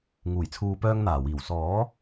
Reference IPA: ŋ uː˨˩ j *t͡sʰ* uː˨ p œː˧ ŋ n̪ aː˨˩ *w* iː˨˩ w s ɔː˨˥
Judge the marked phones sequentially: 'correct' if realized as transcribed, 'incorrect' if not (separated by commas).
correct, correct